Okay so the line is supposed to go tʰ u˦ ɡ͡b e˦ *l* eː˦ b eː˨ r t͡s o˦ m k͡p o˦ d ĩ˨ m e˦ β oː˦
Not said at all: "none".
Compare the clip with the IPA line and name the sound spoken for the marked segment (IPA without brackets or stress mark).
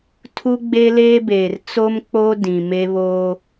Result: l